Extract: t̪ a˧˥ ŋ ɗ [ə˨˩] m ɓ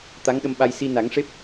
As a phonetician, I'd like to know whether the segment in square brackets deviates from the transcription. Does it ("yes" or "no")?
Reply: yes